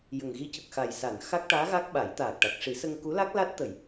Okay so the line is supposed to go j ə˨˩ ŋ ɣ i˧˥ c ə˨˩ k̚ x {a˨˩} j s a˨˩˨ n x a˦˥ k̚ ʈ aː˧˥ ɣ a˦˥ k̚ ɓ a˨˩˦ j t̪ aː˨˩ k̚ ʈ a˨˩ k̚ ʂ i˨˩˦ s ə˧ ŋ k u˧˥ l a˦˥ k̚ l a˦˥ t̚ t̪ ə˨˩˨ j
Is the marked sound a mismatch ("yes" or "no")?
no